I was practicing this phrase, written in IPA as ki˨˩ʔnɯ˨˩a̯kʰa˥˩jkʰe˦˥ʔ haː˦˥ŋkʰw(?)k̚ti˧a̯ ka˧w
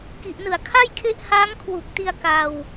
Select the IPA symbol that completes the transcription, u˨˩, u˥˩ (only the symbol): u˨˩